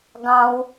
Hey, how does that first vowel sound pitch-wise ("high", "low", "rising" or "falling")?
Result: low